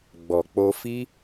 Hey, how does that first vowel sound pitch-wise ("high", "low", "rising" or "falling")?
low